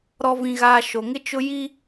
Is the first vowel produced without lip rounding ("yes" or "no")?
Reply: no